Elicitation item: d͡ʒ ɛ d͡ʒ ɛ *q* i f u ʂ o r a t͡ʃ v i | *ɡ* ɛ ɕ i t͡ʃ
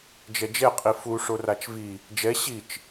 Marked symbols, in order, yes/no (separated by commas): no, no